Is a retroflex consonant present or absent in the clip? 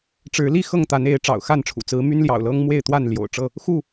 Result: present